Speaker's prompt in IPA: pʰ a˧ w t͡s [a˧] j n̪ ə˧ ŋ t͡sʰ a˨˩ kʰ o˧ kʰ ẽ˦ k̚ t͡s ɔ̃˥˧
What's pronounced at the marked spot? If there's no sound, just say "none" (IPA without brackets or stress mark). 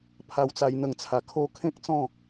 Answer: a˧